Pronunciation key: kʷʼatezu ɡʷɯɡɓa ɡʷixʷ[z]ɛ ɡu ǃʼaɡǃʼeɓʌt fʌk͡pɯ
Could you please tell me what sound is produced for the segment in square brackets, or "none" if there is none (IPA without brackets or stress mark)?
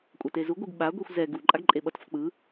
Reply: z